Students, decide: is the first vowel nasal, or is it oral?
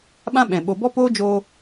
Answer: nasal